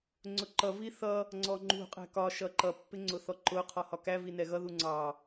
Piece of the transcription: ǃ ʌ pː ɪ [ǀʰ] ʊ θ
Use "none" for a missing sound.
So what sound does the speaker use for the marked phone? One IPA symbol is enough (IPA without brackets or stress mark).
ŋ͡ǀ